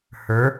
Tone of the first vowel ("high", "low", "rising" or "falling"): rising